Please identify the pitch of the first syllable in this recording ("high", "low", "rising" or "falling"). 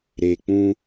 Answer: low